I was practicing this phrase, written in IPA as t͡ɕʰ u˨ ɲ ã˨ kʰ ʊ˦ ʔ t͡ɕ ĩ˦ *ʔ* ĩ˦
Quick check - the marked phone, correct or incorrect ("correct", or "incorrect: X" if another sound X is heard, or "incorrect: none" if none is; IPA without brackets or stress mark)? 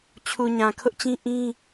correct